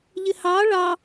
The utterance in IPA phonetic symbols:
ʎɪhɑ ɭɑ

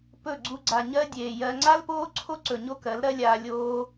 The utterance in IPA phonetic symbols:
pɵ˦˨ɡ͡ǀu˧ɡ͡ǀa˨ ɲɜ˦dʲeː˨jɜ˧ ŋ͡ǀa˦lpoː˦ǀʰo˦ǀɵ˨ ɲo˦kɜ˨˦lɾɜ˦lʲaː˧ lʲoː˧

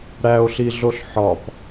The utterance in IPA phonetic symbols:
ɽæo̯ɬiɮoɬ ħɒp

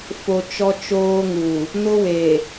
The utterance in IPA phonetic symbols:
fo˨ t͡ʃɔ˦t͡ʃoː˦ŋuː˨ | nʊ˦weː˨

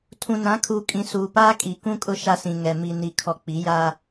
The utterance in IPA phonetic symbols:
tʰũ˨nã˨˦kʰuː˨kʼĩ˨ suː˨paː˦ kʼi˨kũ˦kʼʊ˦ ʃa˦sĩ˨ŋɛ˨ mi˨ni˨ kʰɔ˨k͡pi˨˦ja˦

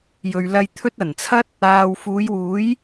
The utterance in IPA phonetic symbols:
jɵ˨ɥlɐ˧jt̪ʰɵ˥t̚ ɐ˨˩nt͡sʰɐ˥t̚ | aː˨wfuː˨˧jwuː˨˥j

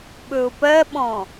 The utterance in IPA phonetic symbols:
ɓɵʊ̯pɜɓɔ̃

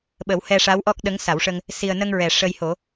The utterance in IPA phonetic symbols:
ɓə˨˩˦whɛ˧ ʂa˧˥wʔɔ˦˥k̚ ɗə˧˥ŋsa˨˩˦wʂə˧ŋ | si˨˩ə̯nə˧ŋɹɛ˨˩˨ ʂə˧jho˨˩˦

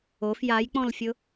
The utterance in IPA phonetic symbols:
of jajk͡pɔ̃lfʲʊ

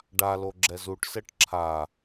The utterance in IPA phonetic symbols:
ɖalo ɡ͡ǁɛzuʈsɛʈ ǁʰa

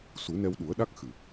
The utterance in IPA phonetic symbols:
su˨˩˦nɛ˧wɗu˨˩˦ə̯ɗa˦˥k̚ xɨ˨˩

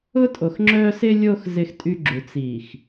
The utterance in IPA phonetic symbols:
ʊ˦tʼo˨xŋ͡ǁœː˦ sɪ˦lʲoː˦x zɪ˦xtʼy˦ɡ͡ǁu˨ t͡siː˨x

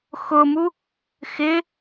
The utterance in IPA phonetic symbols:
xʊmu | xɪ

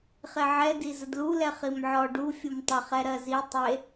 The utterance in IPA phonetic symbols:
χeʕɛ dizədlu lɛχimʕɔ ɖu fʲumtˤɪ χɛɾɜzi tˤe

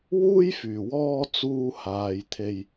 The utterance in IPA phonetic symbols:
wuː˥jfyː˨˩wɔː˧ t͡suː˥haː˧j t̪ʰe˧j

